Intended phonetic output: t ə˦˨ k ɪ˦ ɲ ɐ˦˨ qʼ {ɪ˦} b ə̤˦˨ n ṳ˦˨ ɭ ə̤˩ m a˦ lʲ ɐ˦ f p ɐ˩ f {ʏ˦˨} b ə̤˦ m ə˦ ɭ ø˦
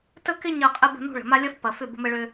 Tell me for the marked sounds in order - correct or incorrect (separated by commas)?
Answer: correct, correct